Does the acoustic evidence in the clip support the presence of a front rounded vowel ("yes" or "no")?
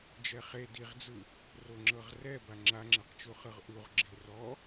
no